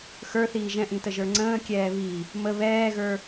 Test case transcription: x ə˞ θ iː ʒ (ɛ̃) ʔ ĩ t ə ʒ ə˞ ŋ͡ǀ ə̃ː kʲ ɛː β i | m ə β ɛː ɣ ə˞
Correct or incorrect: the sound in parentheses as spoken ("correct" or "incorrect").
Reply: correct